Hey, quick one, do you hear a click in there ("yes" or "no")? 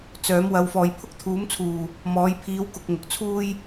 no